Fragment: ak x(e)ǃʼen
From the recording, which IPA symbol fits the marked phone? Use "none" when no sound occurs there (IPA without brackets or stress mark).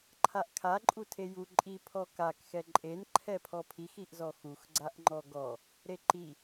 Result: ɛ